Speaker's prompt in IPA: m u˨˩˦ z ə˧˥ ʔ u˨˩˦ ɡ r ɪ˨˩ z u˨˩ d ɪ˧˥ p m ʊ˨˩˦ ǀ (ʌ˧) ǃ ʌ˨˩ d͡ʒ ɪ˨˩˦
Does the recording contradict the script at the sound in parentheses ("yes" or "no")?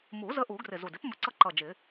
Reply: no